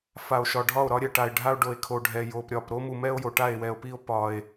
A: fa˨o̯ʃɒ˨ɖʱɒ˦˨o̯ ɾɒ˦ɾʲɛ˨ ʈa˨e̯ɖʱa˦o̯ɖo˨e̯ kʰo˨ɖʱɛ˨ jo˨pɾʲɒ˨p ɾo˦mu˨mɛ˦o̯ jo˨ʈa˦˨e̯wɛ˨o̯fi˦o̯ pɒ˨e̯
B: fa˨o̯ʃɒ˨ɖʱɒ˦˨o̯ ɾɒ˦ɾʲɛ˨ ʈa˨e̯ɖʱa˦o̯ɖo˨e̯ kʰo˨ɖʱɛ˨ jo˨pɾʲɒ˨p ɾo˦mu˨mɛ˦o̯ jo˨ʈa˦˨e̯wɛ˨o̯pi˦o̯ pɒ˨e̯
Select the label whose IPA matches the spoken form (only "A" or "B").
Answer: B